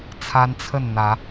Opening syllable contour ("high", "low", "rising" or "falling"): high